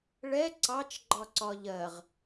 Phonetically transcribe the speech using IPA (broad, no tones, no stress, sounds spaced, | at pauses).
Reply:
ɭ ɛ ǀ ɑ t͡ʃ ɡ͡ǃ ɒ ǀ ɒ ʎ ɜ ʁ